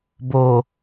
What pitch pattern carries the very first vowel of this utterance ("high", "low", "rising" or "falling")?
low